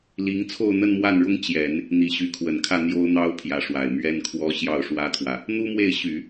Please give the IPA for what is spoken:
l i˧˥ ŋ t͡sʰ o˥˧ ʊ̯ n̪ ə˥˧ n m w a˥˩ n ɻ ʊ˥ ŋ t͡ɕ j ɛ˨˩˦ n | n̪ i˨˩ ɕ y˧˥ kʰ w ə˨˩ n kʰ ä˥˩ n̪ j o˥ ʊ̯ n̪ ɑ˥ ʊ̯ pʰ j ä˧˥ ʂ w a˨˩ ɪ̯ m ɥ ɛ˥ n kʰ w ɔ˥ ɕ j ɑ˥˩ ʊ̯ ʂ w ä˥ t̪ʰ w ä˨ | n̪ u˥ m w e˥˩ ɪ̯ ɕ y˨˩˦

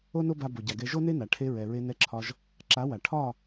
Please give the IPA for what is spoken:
o˦ n o˦ b a˧ b o˨ ɟ a˨ ɡ ɛ˧ ʒ o˦ n e˦ n a˨ ʈʰ e˧ ɹ ɛ˨ ɹ e˧ n ɛ˧ ǁʰ ɒ˧ ʒ | ǁ a˨˦ w a˨ ʈʰ ɒ˦˨

